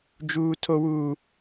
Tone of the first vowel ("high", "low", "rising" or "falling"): low